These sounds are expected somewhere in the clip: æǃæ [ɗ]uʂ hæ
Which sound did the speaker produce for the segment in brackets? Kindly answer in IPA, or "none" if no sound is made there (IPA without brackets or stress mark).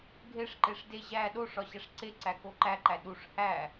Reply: ɗ